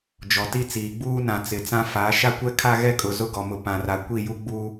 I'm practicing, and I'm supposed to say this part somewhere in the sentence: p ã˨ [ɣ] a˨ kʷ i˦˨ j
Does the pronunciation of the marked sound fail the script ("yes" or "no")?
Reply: yes